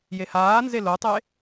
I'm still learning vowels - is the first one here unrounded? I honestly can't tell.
yes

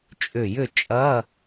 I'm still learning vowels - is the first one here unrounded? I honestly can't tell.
no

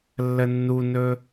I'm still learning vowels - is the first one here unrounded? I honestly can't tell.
yes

